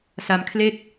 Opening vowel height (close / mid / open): open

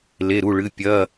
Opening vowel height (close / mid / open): mid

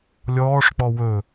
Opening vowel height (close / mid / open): mid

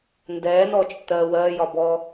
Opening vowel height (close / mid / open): mid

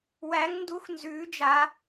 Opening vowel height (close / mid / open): open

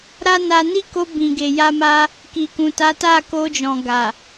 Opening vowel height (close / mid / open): open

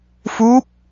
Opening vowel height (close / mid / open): close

